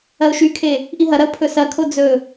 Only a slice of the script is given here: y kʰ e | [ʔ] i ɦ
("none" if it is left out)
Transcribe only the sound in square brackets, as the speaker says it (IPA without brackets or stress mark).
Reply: ʔ